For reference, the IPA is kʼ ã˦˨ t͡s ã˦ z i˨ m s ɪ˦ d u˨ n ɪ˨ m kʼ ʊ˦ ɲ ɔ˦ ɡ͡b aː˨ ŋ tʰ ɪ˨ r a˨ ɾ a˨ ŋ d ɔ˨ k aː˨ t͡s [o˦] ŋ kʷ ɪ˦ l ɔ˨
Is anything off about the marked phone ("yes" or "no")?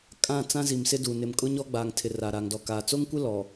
no